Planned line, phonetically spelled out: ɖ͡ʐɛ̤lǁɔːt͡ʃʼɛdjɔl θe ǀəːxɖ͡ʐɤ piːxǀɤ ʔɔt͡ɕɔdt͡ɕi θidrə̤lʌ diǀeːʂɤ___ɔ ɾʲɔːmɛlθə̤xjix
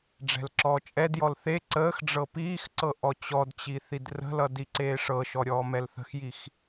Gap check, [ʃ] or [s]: ʃ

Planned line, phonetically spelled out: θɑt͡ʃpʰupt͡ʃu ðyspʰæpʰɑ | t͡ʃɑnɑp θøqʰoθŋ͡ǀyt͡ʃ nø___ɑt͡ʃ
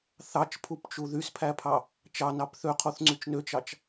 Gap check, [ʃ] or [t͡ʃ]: t͡ʃ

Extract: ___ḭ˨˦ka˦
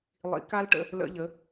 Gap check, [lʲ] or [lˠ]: lˠ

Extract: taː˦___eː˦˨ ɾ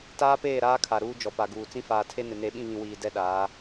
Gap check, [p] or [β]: p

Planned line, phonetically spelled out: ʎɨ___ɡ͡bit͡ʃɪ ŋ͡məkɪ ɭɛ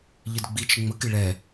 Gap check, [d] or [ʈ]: d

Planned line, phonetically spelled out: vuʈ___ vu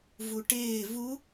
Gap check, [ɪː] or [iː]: ɪː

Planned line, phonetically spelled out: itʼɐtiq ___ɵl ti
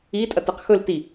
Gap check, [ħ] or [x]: x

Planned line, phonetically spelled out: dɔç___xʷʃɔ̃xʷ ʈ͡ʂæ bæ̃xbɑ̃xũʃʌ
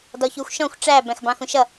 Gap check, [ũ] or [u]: u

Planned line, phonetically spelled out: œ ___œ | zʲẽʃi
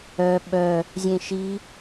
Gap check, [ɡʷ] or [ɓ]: ɓ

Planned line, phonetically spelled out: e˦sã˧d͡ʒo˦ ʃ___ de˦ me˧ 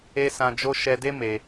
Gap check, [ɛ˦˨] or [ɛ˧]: ɛ˧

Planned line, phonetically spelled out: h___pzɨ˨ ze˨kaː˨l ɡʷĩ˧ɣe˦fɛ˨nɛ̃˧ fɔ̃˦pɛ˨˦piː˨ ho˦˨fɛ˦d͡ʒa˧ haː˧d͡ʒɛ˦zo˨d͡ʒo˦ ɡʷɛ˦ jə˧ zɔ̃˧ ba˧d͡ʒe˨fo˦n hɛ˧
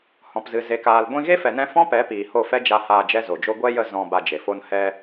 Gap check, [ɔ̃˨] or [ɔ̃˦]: ɔ̃˨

